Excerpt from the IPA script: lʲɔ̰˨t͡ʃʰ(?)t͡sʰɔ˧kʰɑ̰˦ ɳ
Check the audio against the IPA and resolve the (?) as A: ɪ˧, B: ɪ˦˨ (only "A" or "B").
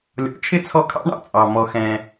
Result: B